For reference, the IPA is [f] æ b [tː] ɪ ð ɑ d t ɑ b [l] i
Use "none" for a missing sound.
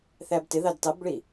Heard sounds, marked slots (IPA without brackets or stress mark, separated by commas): θ, t, ɭ